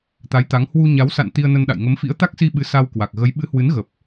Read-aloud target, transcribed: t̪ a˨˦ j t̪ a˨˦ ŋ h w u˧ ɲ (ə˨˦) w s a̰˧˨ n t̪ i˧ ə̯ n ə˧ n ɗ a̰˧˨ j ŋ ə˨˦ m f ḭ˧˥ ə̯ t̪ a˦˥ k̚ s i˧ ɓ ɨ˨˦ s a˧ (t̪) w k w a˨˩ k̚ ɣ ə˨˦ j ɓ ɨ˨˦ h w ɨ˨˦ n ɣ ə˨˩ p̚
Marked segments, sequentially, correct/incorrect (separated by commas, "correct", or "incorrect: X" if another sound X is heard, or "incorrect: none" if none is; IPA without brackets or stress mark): incorrect: a˨˦, incorrect: none